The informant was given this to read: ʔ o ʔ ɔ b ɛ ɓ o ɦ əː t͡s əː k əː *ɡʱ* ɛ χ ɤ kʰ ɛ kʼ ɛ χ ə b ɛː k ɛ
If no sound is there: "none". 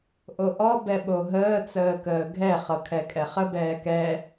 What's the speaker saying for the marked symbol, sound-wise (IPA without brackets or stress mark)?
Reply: ɡʱ